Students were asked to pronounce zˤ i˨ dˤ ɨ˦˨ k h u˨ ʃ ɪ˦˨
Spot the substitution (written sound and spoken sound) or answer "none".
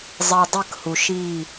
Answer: ɪ˦˨ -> i˦˨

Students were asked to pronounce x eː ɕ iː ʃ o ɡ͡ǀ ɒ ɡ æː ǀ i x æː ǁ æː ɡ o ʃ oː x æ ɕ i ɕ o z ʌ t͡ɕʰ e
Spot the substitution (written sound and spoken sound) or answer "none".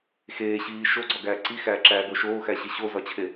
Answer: ʌ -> ɒ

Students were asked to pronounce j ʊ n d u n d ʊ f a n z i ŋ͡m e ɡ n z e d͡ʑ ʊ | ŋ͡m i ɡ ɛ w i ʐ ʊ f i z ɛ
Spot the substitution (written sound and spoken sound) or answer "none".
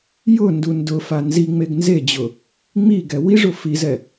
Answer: none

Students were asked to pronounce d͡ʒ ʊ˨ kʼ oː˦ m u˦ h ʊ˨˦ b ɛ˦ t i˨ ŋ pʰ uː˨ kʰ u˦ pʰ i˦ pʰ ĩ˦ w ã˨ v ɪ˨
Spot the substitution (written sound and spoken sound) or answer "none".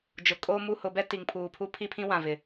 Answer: kʰ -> pʰ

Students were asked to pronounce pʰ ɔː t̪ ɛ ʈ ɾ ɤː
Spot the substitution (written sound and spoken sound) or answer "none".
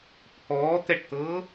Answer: ɾ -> t̪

